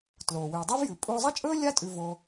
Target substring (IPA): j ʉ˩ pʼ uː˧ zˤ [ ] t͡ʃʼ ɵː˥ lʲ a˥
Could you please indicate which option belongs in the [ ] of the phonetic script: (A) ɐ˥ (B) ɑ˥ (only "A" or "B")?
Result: A